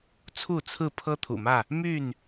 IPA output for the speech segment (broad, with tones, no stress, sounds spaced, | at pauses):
t͡sʰ u˥˨ t͡sʰ ɹ̩˥˨ pʰ ɤ˦ t̪ʰ ṵ˨˩ m ä˥˨ | m y˥˨ n